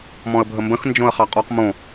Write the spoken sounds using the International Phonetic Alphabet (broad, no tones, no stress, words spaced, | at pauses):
mɔ̃ə̯bʱəmbə̃x nd͡ʒõə̯χɑqʼɔq mõ